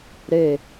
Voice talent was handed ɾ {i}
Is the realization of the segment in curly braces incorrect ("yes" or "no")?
yes